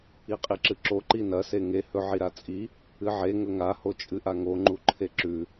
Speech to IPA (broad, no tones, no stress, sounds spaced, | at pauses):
i qʼ i ǁ ɨ ǁ o ǃ i n ɐ s e ŋ e h ɵ ʕ i ɾ a t͡sʼ i | ɨ ʕ e ŋ ɵ ŋ a h o t͡ʃʼ ɨ ʔ a ŋ o ŋ͡ǃ u ǃʰ e ǁ ʉ